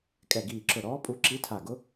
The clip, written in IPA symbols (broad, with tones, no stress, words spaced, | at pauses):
kʼɛ˧˩ɡiː˧˩ǁʊ˧˩ ɾɔː˧˥pʼu˧˥ ǁi˧˥tʰa˧˩ɡʊ˧˥